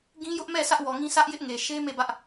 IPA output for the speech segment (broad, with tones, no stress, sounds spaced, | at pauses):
ɡ ĩ˦ j ʊ˦ ʔ m ɛ˦˨ sʰ ä˦ ʔ w ɔ˨ ŋ ĩ˦ sʰ ä˦ ʔ j ɪ˦ ʔ ŋ e˨ ʃ e˦ m e˦˨ b ä˦ ʔ